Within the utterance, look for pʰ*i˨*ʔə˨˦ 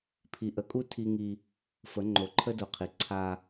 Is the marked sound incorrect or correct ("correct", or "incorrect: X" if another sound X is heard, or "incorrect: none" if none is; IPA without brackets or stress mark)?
correct